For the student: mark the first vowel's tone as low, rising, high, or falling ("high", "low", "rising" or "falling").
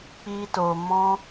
high